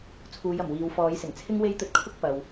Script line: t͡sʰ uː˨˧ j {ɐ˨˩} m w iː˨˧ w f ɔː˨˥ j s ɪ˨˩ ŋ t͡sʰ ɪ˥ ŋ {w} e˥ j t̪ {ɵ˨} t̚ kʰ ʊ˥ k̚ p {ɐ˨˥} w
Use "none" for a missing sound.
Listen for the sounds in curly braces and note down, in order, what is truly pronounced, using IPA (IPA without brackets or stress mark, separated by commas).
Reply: ɐ˨˩, w, ɵ˧, ɐ˨